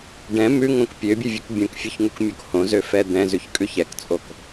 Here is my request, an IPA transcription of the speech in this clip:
ɖ ɛ̃ m ʉ ŋ õ k pʲ ø bʲ ʉ vʲ ʉ k bʲ õ k fʲ ø ç ŋ u k mʲ o k h õ z ø f ɛ d̪ ɛ̃ z ʉ ç kʼ ʉ ç ɛ k t͡sʼ o k

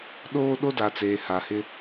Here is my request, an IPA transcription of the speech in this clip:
ɗ oː˦ ɗ o˦ d a˨ t͡s eː˨ h a˨ h ɪ˦

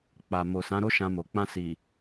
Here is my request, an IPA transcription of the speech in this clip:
k͡p a˨ m o˨ s ã˨˦ ɾ o˦ ʃ ã˧ m o˨ k͡p ã˧ s i˨

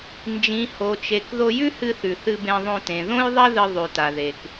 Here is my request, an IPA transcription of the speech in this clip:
n d͡ʒ ĩ˩ h o˩ t͡ʃ e˩ k ð o˧ j ʉ˥ h ɨ˧ θ ʉ˩ θ ɨ˧ b ẽ˧ ðˤ õ˧ t ẽ˩ ð õ˥ j ðˤ ɐ˥ ð ɨ˧ ðˤ ʉ˩ t a˩ ð e˩ k

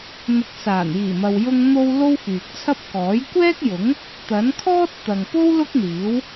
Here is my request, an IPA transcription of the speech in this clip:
n̪ ʊ˨ k̚ s aː˨˩ n j iː˨˩ m ɐ˨ w j ʊ˧ ŋ n̪ o˧ w l o˥ w f yː˨ k̚ t͡sʰ ɐ˥ p̚ k ɔː˨˥ j kʷ ɛː˥ k̚ j ʊ˨˥ ŋ | t̪ ɐ˨˥ n kʰ ɔː˥ t̚ t̪ ɐ˨ ŋ p o˥ w l ʊ˥ k̚ n̪ iː˨˥ w

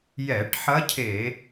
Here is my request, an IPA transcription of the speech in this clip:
j ɛ˧˩˧ ʈ ħ ɐ˧˥ cʰ e˧˩˧

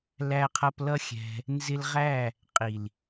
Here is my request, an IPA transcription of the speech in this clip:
l æ˧ qʰ ʌ˧ p l ʌ˦ xʲ ɛ̤˧ | n z ɪ˧ l ʁ æ˦˨ | qʼ i˨ l

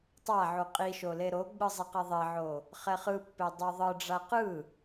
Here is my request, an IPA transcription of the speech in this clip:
tˤ a ʕ u qʼ i ʃ o l e ɾ o ɡ͡b ɯ zˤ i q e ðˤ e ʕ o | χ ɛ χ ɯ pː e dˤ o ðˤ ɯ ɖ͡ʐ a q ɯ

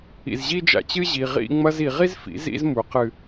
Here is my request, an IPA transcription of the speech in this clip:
ḭ˨ z ʑ i˦ d͡ʒ a̰˧ t͡ɕ ɨ˦ ʑ i˨ ʁ ḭ˧ ŋ͡m ɐ˧ z i˨ ʁ i˦ z f ḭ˨˦ z ḭ˦ z m u˨˦ q ɨ˧

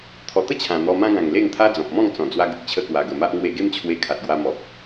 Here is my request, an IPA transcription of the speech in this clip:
t̪ʰ ɔ˨˩ t̪ ə˥˧ t͡ɕʰ ã˨˩ n̪ ɔ˧ m ã˦ ɡ ã˨˩ ŋ l e˥˧ ŋ t̪ʰ a˦ d͡z ɔ̃˨ p̚ m ɔ̃˥˧ ŋ t͡s ɔ̃˨˩ d͡z w a˧ ɡ ə˨ k̚ t͡ɕʰ ə˧ k w a˨˩ ɡ ə˨˩ m a˦ ʔ ŋ w e˧ ɡ e˦ m t͡ɕʰ w e˧ kʰ a˨ t̚ ɡ w a˧ m ɔ˨ k̚

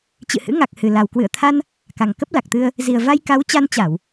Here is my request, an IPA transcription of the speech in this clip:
t͡ɕ ɨ̰˧˨ h ɨ̰˧˥ ŋ a˨˩ k̚ h ɨ˨˩ l a˨˩ w k w ɨ̰˧˨ ə̯ t̪ʰ a˧ n | k a˨˩ ŋ k ə˦˥ p̚ l a˨˩ k̚ t̪ ɨ˧ ə̯ | z i˨˩ ə̯ v a˧ j k a˨˦ w t͡ɕ a˧ n t͡ɕ a˧˩˨ w

